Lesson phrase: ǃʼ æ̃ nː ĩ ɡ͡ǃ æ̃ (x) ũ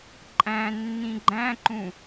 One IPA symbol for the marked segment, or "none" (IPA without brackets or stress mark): ǃ